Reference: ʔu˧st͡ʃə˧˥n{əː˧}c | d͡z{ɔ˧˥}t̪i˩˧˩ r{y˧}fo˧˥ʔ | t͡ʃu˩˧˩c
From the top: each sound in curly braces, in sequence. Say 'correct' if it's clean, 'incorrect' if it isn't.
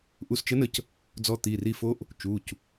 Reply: incorrect: ə˧, correct, incorrect: i˧

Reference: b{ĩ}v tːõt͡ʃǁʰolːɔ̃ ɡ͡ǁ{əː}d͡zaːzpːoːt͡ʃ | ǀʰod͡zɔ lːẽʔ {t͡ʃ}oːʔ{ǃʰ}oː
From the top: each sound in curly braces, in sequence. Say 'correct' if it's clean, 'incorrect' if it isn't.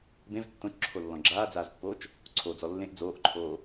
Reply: incorrect: ẽ, incorrect: aː, incorrect: d͡z, correct

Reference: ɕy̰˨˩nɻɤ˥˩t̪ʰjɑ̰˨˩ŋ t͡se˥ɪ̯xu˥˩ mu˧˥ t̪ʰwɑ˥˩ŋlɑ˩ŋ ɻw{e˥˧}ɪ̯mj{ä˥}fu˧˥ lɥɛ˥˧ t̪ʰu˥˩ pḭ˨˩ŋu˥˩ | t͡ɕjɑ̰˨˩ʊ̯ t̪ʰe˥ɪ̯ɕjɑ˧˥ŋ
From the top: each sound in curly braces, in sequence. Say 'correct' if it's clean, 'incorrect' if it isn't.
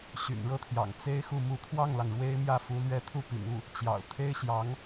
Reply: incorrect: e˥, incorrect: ä˥˩

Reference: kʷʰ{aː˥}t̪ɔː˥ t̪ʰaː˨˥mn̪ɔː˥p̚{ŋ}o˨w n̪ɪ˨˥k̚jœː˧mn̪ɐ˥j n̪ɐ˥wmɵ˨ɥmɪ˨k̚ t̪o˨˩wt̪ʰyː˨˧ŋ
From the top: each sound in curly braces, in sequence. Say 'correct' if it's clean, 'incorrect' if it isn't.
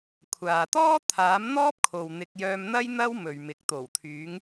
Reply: incorrect: aː˨, incorrect: kʰ

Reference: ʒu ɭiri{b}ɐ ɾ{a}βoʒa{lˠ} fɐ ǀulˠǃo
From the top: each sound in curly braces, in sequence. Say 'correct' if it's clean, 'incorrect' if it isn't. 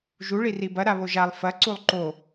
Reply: correct, correct, correct

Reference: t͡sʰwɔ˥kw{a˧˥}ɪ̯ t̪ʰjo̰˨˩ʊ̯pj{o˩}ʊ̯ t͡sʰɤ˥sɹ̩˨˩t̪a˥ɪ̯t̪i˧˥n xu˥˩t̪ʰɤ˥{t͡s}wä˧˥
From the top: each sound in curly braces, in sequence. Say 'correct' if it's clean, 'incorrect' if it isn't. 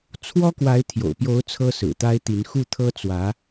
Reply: correct, incorrect: o˧˥, correct

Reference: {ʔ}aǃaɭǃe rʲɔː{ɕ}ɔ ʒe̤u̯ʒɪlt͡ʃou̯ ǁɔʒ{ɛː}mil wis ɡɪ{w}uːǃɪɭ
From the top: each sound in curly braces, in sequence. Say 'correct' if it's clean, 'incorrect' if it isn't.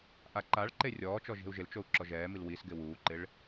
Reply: correct, incorrect: t͡ʃ, correct, correct

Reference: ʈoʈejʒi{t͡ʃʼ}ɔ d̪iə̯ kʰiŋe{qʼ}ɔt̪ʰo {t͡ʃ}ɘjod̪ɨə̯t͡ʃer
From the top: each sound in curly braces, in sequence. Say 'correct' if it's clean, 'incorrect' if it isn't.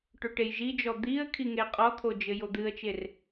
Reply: incorrect: d͡ʒ, correct, incorrect: d͡ʒ

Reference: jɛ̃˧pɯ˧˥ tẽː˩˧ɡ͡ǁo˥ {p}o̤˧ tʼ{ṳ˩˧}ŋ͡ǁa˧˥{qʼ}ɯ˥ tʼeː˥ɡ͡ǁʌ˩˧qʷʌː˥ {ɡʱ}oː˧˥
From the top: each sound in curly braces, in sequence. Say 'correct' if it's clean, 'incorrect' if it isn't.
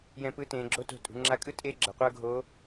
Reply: incorrect: t, correct, incorrect: kʼ, correct

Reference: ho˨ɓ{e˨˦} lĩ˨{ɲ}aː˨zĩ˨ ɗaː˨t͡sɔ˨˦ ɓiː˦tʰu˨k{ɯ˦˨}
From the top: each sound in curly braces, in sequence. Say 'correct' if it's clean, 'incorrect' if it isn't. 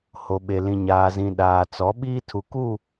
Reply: incorrect: e˨, correct, incorrect: u˦˨

